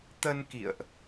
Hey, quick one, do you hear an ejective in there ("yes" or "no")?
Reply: no